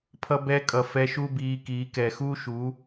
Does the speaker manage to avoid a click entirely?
yes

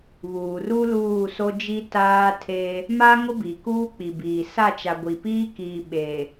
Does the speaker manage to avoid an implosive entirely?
no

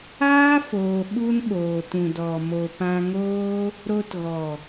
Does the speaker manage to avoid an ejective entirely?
yes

